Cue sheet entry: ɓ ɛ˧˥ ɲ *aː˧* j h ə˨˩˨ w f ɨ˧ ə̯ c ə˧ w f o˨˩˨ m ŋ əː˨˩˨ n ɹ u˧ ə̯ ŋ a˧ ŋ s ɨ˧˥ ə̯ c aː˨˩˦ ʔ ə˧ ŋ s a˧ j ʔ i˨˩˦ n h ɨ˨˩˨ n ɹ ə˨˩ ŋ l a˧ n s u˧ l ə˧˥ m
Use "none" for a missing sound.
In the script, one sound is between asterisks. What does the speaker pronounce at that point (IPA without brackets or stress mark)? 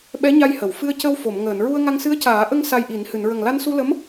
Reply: a˧